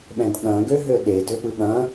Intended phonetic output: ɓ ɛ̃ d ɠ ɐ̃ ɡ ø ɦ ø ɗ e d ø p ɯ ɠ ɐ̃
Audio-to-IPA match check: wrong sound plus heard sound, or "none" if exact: none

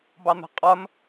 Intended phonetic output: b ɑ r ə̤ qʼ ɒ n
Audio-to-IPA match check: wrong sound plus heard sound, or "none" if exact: r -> n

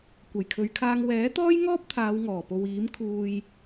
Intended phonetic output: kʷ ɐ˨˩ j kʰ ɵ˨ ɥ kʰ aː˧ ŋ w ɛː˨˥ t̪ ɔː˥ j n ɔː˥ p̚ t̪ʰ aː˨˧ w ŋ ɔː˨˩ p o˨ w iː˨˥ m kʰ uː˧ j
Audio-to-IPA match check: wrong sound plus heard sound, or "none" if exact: n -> ŋ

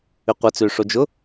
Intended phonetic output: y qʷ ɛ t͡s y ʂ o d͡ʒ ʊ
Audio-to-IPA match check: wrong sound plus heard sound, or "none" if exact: none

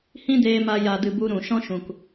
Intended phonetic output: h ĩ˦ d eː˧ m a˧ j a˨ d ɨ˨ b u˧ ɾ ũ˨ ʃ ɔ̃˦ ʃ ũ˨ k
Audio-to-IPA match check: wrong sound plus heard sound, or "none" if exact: none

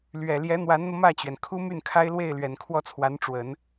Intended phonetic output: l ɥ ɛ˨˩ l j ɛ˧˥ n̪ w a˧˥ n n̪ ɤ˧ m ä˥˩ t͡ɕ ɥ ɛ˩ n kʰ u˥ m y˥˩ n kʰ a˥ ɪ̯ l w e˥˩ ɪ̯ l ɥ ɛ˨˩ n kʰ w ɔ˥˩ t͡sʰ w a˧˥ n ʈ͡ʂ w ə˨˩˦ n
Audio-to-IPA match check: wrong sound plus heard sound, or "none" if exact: none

